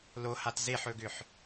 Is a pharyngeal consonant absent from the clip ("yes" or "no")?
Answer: no